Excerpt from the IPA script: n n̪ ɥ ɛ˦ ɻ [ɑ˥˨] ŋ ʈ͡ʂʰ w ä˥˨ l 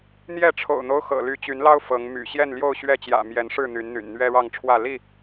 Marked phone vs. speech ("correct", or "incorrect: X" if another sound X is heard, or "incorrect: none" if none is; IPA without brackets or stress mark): correct